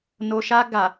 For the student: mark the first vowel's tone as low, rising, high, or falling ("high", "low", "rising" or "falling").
low